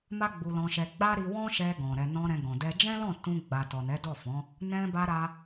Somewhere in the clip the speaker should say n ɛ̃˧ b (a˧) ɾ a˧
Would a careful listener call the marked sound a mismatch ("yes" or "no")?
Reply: no